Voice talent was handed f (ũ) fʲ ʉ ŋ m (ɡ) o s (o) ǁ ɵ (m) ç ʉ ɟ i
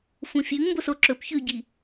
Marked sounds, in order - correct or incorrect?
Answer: correct, incorrect: b, correct, incorrect: p

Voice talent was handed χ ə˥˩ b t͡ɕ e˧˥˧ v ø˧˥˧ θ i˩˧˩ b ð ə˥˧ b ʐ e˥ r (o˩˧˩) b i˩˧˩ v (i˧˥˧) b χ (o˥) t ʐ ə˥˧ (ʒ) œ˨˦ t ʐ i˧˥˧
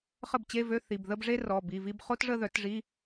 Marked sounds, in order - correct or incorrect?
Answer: incorrect: ɔ˩˧˩, incorrect: i˥˧, correct, incorrect: ð

